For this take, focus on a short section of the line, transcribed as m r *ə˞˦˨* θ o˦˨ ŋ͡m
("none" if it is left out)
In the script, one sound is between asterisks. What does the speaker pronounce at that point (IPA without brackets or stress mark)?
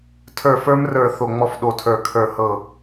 ə˞˦˨